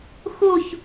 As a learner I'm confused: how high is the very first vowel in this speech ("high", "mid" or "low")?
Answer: high